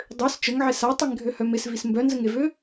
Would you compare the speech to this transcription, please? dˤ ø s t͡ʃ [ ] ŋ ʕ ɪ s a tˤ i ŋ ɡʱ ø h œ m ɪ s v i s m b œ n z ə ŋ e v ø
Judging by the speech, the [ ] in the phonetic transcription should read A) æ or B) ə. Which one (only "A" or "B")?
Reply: B